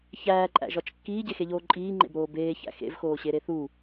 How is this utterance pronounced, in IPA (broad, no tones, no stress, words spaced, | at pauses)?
çæːǃʼæ̰ʒɒt͡ʃ kːiːɟexeʎoː ǃʼiːŋ͡ǃḛbɾoː beːçæ̰ xḛvxoːɕeɾe θu